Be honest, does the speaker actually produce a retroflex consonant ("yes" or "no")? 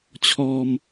no